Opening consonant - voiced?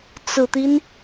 no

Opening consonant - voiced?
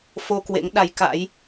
no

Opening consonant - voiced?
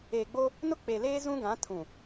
yes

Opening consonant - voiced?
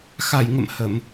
no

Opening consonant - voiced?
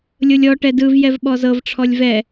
yes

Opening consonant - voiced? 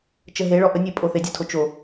no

